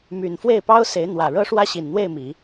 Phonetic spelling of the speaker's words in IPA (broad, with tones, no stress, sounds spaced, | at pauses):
m y˨˩ n f w e˥˩ ɪ̯ p ɑ˥ ʊ̯ s e˧˥ ɪ̯ n̪ w ä˨˩ ɻ ɤ˥ ʂ w ä˥ ɕ i˨˩ n n̪ w e˥˩ ɪ̯ m i˨˩˦